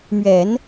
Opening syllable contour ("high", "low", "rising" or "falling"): low